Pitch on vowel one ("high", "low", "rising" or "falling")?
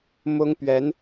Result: high